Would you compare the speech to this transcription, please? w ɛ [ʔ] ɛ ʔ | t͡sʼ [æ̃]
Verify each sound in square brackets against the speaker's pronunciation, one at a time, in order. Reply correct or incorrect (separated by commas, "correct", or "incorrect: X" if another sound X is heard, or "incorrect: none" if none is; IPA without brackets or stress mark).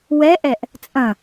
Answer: correct, incorrect: ɐ̃